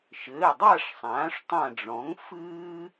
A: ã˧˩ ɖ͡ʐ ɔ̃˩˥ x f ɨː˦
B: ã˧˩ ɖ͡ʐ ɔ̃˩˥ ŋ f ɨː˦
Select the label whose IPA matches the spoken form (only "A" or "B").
B